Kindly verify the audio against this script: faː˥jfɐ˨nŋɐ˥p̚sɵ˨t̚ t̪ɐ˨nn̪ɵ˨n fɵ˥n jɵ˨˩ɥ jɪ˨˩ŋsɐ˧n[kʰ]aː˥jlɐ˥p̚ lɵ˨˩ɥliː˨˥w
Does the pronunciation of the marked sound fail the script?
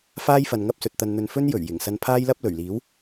yes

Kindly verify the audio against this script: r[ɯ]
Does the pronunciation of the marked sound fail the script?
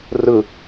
no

